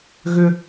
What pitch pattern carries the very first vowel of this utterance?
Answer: high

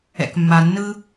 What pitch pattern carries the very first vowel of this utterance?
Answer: low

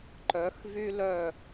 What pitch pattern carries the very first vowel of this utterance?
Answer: rising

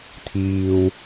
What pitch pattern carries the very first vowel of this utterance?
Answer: high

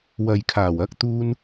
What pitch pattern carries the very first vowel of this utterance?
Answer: low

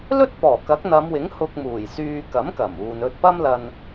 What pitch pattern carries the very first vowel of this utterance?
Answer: high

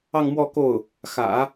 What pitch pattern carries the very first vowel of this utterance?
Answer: falling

